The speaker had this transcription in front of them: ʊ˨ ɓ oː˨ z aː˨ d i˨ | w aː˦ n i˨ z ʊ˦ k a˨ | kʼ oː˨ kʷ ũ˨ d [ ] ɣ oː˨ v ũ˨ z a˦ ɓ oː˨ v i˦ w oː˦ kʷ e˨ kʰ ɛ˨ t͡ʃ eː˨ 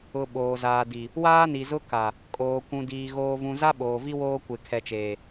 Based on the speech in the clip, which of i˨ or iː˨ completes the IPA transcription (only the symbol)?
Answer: iː˨